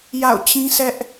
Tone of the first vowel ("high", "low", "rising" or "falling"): falling